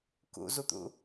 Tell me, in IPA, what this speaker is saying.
k ṵ z u t̪ ṵ

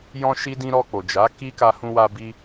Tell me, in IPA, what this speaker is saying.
j ɔ̃˧ ʃ i˧ d ĩ˧ ɾ ɔ˧ k͡p o˨ d͡ʒ a˨˦ k i˦ k a˦ h ũ˦ w a˦ b i˧

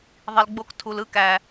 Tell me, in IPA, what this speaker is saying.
ðˤ i˨ l ɡ͡b o˧ k tʰ u˨ l ɯ˧ k æ˨

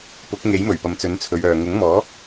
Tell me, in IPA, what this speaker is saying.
p ʊ˨˥ k̚ ŋ e˨˥ j m ɵ˨˩ ɥ p ɐ˨ m t͡s ɵ˨˥ n t͡sʰ ɵ˨˧ ɥ œː˨ ŋ ʊ˨˥ ŋ m ɔː˨˥

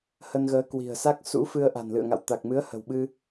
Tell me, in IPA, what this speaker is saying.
h ə˧ n ɣ əː˨˦ k w i̤˨˩ ə̯ s a˦˥ k̚ s ṵ˧˥ f ɨ˧ ə̯ ʔ a̤˨˩ n l ɨ̰˧˨ ə̯ ŋ a̰˧˨ w t̪ a˨˩ k̚ m ɨ˨˦ ə̯ h ə̤˨˩ w ɓ ɨ˧

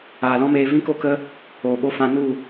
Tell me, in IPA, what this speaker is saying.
aː˨ l ɔ̃˦ m eː˧ v ĩ˦ k o˦ k ə˦ | oː˨ ɓ o˧ f ã˧ n u˦˨

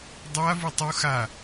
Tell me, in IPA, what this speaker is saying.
dˤ a v u tˤ u x a

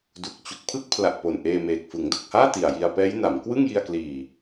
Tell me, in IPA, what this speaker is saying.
d u˨˩ k̚ t͡ɕ u˨˩ k̚ pʰ ɯ˥˩ k̚ pʰ l a˨˩ ʔ p o˨˩ n ʔ eː˧ m eː˨˩ k̚ f ɯ˩˦ ŋ d o˨˩ k̚ h aː˥˩ t i˨˩ a̯ j i˧ a̯ p ɛː˦˥ j n a˩˦ m k w ɯ˥˩ ŋ j i˧ a̯ k l iː˨˩

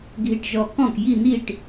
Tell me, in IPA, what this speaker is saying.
ɡʱ i˧˩ ʈ ʒ ɔ˧˩ k ɔ̃˥˩ k j i˧˩ n i˧˩ ʈ

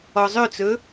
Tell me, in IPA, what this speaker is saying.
ɔ zˤ ø t͡s ɵ

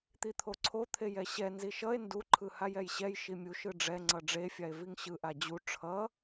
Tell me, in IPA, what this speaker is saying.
t̪ i t̪ʰ o ǀʰ o t̪ʰ e j ɛ ɕ ɛ n z i ʃ ʌ e̯ n d u ǃʰ ɯ h a j ɛ j ɕ ɛ j ʃ i mʲ u ʃ ɯ ɖ͡ʐ ɛ ŋ͡ǀ ʌ ɖ͡ʐ e fʲ a e̯ v i ŋ ɕ ɯ ʔ a d͡ʑ u ʈ͡ʂʰ ʌ

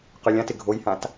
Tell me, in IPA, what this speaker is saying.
q ø lʲ ã t ɪ ɡʱ o j h ã t

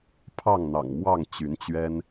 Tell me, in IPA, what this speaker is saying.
pʰ ɑ˥˨ ŋ n̪ ɑ̰˨˩ ŋ m w ɑ˥˨ ŋ t͡ɕ y˨˦ n t͡ɕ ɥ ɛ˦ n

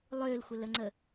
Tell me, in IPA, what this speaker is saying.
lˠ ø l xʷ ə l ə ŋ͡ǀ ə

